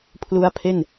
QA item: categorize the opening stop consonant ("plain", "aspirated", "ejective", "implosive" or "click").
aspirated